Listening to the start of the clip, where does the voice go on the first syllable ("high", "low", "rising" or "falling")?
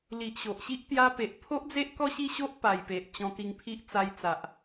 low